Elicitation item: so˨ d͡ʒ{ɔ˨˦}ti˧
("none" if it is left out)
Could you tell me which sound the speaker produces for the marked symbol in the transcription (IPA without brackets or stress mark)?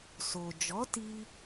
ɔ˨˦